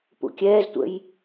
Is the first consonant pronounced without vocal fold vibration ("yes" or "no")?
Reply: yes